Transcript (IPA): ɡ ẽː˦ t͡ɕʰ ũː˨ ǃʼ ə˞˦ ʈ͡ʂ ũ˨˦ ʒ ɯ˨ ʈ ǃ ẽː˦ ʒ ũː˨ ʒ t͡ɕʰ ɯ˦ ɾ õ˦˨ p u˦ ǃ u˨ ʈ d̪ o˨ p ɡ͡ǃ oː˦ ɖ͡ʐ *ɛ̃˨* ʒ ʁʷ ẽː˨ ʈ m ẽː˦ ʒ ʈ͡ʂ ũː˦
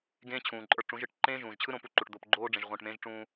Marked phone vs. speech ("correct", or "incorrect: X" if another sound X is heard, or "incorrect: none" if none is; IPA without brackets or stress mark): incorrect: ẽ˨